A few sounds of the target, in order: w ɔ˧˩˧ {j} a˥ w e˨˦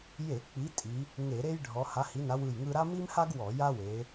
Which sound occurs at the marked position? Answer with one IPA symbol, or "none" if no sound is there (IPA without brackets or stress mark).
j